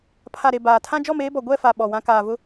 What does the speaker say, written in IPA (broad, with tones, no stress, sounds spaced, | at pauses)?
pʰ a˨ ɾ e˨ b aː˨ tʰ ã˦ d͡ʒ ɔ˦˨ m eː˦ b ɔ˨ ɡʷ ɛ˦˨ f a˨ ɓ ɔ˨ w ã˦ k aː˨ v ʊ˦